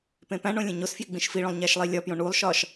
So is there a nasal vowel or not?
yes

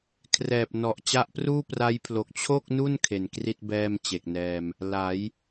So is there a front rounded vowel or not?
no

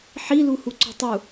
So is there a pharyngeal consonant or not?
yes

